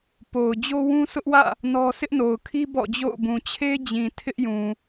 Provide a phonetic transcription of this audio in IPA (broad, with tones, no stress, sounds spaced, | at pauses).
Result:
p o˨ ʊ̯ d͡ʑ o˦ w ũ˦ sʰ ʊ˦ ʔ w ä̰˦˨ | n ɔ˦ sʰ ɪ˦ ʔ n o˨ ʊ̯ kʰ i˦ b ɔ̰˦˨ d͡ʑ o̰˦˨ ʊ̯ b ũ˨ t͡ɕʰ e˦ d͡ʑ ĩ˨ tʰ ɪ˦ ʔ j ũ˨